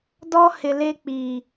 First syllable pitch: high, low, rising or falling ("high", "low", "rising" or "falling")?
high